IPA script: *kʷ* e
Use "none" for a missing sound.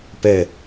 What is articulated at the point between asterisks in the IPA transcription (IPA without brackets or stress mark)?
p